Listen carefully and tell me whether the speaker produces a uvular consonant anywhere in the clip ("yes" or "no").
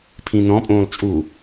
no